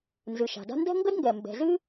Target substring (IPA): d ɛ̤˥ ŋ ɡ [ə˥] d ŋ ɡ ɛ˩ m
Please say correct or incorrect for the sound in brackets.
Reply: correct